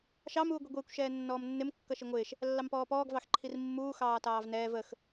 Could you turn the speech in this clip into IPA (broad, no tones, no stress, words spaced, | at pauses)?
ʃɑm uːɡʷiɡʷɪːkʷ ʃɛːnːɔːmnːɪm kːʌʃiŋʷɪːʃ | lːɑmpɔːpɔːɡ vɑxǃʰirmːuː xɑːtɑːvnɛːv əx